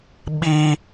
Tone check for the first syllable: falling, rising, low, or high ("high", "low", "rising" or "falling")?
high